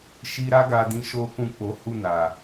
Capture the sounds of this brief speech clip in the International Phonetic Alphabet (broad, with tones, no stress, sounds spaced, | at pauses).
ʃ i˧ ɾ a˦ ɡ a˧ d ĩ˧ ʃ o˦ k ũ˦˨ k͡p o˨˦ h u˦˨ n a˨